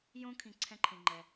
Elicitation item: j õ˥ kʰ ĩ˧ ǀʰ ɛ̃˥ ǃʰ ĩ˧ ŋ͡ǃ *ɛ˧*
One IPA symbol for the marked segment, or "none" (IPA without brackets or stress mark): ɛ˧